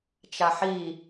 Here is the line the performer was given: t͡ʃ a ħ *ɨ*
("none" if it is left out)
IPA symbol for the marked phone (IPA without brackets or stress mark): i